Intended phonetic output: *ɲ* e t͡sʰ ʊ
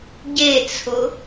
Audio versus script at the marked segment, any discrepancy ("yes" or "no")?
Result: yes